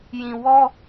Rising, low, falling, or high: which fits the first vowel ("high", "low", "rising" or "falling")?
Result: low